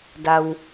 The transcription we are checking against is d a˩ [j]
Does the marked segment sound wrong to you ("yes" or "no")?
yes